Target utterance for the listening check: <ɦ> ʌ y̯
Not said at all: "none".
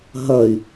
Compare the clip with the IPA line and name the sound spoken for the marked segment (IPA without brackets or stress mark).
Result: ɦ